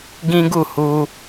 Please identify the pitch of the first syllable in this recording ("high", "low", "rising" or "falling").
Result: high